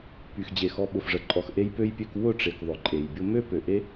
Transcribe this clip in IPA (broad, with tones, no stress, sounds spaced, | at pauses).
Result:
p y˨ x d͡ʑ e˨ x ɔ˧ ɓ ʊ˨ f ʐ ə˨ ǃʼ ɔ˧ x ʔ e˦ j p ø˦ j pʲ ø˦ k w ʊ˦˨ ʈ͡ʂ e˨ k ðˤ ʊ˨ ǃʼ e˨ j bʲ ʊ˦ m ø˦ p ø˨ ʔ e˦